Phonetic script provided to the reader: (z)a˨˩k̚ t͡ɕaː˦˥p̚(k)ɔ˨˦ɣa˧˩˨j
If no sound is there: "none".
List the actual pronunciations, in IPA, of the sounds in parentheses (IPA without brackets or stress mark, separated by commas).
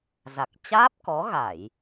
z, k